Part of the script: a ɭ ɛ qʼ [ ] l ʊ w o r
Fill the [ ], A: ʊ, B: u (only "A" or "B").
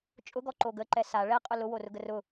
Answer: A